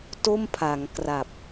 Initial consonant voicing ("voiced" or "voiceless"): voiceless